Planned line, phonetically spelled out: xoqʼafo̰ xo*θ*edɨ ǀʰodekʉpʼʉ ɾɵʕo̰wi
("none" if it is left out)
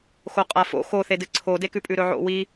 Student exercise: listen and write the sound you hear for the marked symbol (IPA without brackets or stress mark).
θ